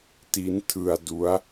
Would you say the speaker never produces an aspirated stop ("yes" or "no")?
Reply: no